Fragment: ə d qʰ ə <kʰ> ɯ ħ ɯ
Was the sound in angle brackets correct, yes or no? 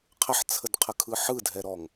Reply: yes